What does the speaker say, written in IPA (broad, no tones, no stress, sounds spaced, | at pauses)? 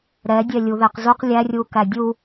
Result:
ɾ ɛ dʲ ɛ lʲ u ð e q z u q lʲ æ rʲ u k æ dʲ u